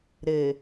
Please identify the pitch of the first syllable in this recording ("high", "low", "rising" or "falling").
low